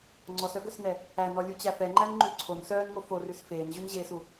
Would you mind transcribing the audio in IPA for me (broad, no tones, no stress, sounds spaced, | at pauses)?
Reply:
ŋ͡ǀ ɔ s œ ɡ œ s n ɛ | æ n ɔ lʲ u t͡ɕ æ f ɛ ŋ͡ǃ æ n ŋ͡ǃ ʉ ǀʰ o n s œː n ŋ o f o r ʉ s f eː n ʑ ʉ n ʑ eː s u